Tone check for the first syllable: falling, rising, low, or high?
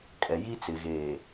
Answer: low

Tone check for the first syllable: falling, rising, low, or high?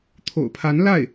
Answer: low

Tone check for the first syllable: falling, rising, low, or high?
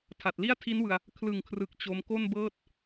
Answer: low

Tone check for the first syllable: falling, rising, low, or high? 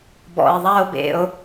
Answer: low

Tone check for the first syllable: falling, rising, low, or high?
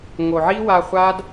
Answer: low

